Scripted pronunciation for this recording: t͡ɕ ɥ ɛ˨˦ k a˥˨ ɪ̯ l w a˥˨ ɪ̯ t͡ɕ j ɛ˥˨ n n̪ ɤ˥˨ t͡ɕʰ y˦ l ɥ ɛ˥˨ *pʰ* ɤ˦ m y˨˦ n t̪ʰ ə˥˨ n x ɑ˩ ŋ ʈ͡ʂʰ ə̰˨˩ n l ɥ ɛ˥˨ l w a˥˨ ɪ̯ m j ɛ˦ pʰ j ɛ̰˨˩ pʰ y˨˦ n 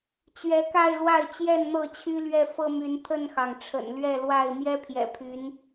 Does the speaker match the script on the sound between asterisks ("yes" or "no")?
no